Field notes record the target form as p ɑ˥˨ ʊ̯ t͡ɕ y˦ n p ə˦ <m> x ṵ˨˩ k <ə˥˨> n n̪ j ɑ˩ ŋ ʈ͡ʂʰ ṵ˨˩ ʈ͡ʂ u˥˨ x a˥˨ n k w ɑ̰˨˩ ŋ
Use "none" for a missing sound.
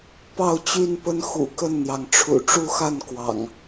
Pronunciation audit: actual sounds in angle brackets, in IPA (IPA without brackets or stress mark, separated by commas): n, ə˥˨